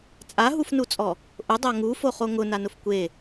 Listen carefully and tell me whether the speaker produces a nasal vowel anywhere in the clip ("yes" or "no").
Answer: no